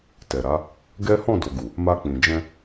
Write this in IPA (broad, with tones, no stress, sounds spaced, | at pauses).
t ɛ˨ ɾ a˨˦ | ɡ ɛ˦ h ɔ̃˦˨ d o˨ ɡ u˨ | m a˧ k͡p ĩ˨ d͡ʒ ɛ̃˧